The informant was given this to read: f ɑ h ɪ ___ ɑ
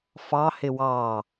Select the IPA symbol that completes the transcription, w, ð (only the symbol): w